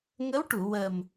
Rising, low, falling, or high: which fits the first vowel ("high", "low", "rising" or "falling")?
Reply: rising